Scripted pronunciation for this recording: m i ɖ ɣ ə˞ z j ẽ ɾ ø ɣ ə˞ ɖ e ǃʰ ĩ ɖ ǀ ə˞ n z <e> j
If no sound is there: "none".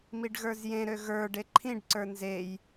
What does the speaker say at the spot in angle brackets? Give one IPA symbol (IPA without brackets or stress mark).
e